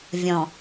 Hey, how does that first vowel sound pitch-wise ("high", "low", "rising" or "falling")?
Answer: low